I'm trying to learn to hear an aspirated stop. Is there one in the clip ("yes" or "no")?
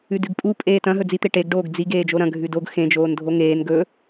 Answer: no